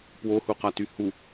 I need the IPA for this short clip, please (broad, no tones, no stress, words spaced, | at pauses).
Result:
pwohuqaty hu